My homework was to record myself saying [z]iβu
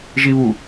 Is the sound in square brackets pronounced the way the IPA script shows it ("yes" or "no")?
no